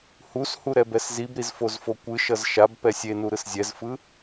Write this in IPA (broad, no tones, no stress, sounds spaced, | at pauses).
h u s h u ɾ ɛ b ɛ s z i b ɾ i z f o z f o kʷ ɯ ʃ ʌ z ʃ a b p ɛ sʲ e n u ɾ ɯ s zʲ ɛ z f ɯ